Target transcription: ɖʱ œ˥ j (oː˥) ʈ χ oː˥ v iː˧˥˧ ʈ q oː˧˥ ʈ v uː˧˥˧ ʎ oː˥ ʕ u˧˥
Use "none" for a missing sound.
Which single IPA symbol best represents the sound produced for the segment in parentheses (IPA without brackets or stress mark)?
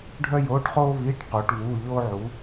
oː˧˥˧